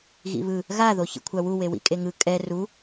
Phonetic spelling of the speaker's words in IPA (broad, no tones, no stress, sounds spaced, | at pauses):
ɣ ḭ β ɯ | ɣ a ð o ç ḭ kʷʰ a w u w e w ḭ kʼ e ŋ ɯ kʼ ɛ r u